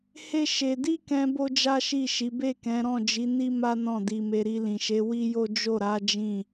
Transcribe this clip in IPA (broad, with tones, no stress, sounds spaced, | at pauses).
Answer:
h e˦ ʃ e˧ d i˦ k ɛ̃˧ b o˦ d͡ʒ a˦ ʃ i˦˨ ʃ i˨˦ b e˦˨ k ɛ̃˨˦ ɾ ɔ̃˦˨ d͡ʒ i˨˦ n i˦ m a˦ n ɔ̃˦˨ d i˧ m e˧ ɾ i˧ l ĩ˨ ʃ e˨˦ w i˦ j o˦ d͡ʒ o˦˨ ɾ a˨˦ d͡ʒ ĩ˦˨